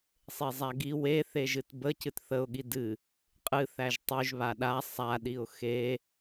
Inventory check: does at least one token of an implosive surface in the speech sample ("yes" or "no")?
yes